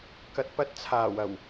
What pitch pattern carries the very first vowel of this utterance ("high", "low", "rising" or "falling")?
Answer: low